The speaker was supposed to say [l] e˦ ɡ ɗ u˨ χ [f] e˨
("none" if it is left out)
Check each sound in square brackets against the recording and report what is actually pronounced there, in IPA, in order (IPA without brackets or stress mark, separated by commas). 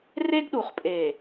r, pʼ